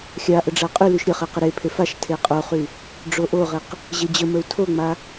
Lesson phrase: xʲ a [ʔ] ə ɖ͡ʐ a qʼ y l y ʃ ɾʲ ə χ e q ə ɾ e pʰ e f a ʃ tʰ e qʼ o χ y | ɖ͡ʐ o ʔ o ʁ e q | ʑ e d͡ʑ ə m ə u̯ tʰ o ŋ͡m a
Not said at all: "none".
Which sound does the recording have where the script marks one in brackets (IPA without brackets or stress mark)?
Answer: ʔ